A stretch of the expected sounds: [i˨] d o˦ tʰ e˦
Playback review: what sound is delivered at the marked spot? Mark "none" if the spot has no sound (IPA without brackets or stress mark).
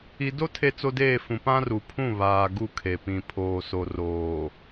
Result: i˨